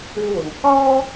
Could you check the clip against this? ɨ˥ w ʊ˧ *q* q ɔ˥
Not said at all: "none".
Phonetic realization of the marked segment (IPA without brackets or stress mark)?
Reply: ŋ